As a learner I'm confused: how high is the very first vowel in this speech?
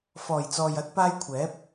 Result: mid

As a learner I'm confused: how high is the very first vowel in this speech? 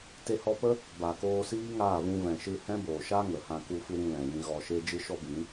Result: mid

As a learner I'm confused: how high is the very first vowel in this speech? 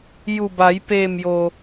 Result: high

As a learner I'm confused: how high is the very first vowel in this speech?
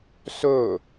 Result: mid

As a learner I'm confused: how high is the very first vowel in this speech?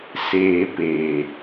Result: mid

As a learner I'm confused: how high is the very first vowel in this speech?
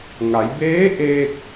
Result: low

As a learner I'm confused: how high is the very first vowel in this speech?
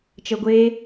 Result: mid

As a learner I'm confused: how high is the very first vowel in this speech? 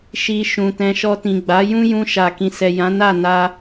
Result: high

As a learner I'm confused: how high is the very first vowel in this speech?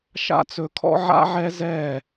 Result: low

